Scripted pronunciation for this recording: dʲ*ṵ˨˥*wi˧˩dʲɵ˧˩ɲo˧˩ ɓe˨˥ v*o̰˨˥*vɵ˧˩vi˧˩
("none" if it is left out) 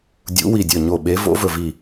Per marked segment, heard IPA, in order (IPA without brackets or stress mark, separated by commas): ṵ˨˥, o̰˨˥